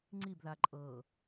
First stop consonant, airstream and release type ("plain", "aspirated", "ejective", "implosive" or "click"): click